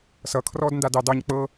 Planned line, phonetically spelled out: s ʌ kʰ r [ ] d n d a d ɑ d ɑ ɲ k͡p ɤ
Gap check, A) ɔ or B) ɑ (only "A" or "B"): A